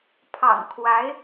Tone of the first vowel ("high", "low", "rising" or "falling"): low